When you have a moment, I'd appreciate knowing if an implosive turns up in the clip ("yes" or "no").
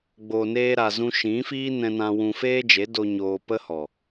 no